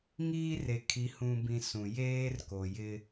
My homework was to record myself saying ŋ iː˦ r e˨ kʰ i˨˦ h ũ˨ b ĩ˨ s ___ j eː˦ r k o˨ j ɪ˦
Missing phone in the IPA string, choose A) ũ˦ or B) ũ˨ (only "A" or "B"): B